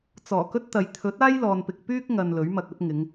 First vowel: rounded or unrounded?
rounded